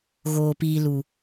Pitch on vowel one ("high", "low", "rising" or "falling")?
low